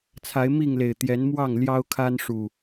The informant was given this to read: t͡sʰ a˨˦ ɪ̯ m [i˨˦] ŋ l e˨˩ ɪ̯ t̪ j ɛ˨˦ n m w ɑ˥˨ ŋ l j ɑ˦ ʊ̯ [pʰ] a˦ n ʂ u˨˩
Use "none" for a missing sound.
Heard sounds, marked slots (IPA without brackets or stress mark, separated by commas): i˥˨, kʰ